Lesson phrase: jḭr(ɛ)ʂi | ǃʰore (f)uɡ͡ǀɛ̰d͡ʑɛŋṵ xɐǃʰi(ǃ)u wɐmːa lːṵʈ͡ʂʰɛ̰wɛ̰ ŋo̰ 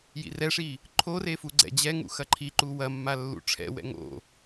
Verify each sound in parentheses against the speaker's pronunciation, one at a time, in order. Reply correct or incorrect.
correct, correct, correct

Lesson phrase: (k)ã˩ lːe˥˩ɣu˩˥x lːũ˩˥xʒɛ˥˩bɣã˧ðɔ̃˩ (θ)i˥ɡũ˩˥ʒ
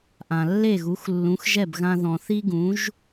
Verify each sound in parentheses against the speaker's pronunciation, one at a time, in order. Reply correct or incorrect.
incorrect: ʔ, correct

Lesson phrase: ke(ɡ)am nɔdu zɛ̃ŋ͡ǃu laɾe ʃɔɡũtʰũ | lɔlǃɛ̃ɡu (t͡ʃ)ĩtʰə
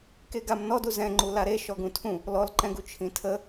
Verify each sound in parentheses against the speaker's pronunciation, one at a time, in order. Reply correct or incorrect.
correct, incorrect: t͡ʃʰ

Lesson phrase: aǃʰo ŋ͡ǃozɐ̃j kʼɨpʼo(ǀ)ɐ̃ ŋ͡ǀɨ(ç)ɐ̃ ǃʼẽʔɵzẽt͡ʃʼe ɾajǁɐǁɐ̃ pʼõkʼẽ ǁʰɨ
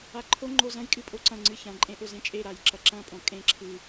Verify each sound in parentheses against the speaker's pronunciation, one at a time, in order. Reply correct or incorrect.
correct, correct

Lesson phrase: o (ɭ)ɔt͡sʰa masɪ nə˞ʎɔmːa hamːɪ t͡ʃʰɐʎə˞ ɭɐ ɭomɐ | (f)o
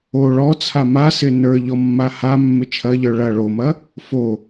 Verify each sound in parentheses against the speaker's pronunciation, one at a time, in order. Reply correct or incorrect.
correct, correct

